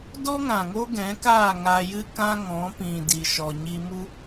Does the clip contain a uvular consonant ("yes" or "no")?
no